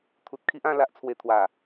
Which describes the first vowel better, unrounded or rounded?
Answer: rounded